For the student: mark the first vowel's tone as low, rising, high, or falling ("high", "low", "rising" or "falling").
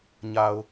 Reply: low